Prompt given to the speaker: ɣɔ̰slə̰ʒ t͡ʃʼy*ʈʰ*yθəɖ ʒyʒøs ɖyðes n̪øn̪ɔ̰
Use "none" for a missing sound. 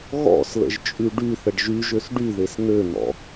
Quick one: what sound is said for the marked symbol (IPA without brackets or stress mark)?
ɖ